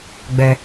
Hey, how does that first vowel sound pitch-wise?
high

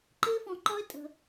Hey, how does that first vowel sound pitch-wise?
high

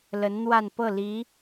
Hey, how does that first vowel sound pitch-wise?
rising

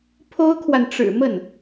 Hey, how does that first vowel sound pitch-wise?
high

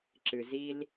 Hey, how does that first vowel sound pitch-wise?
low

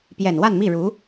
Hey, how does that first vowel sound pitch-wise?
low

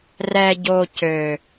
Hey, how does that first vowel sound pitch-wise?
low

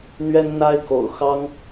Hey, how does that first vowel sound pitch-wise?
high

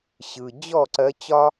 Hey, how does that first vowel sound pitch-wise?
low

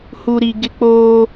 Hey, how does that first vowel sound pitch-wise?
low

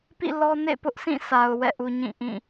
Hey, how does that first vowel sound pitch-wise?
falling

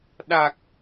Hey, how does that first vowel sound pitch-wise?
low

